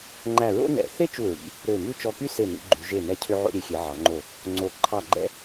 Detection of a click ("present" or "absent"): present